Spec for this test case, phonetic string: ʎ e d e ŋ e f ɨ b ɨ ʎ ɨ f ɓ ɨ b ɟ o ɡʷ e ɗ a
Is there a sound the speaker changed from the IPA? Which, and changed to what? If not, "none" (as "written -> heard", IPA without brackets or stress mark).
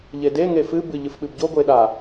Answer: none